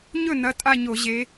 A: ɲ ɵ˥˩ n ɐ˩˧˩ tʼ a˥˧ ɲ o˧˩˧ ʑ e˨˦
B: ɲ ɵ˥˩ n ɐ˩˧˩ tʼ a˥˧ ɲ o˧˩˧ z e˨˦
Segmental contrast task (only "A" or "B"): A